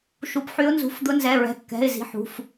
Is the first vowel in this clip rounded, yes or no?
yes